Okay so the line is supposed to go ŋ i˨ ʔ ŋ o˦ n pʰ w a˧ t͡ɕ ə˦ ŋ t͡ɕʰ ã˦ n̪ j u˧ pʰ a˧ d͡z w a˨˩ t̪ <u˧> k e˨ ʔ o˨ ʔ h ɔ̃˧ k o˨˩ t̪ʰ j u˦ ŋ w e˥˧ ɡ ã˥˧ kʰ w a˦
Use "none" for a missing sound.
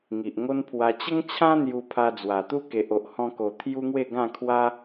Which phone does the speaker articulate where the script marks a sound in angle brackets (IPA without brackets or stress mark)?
u˦